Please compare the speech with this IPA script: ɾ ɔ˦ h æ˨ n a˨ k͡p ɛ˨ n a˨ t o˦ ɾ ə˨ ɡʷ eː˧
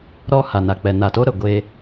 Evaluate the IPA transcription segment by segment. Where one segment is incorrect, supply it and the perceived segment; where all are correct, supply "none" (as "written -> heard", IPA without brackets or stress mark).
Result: æ˨ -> a˨